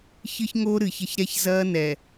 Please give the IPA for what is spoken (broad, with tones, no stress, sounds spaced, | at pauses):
ç ɨ˦ ç ŋ oː˦ ɾ ɨː˨ ç ɐ˦ ç ɾ ɛ˦ ç z ɐː˦ n ɛ˨